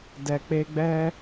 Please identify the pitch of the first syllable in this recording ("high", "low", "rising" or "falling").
low